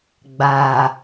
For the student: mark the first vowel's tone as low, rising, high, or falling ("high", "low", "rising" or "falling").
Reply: low